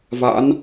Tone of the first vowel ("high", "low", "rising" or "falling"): rising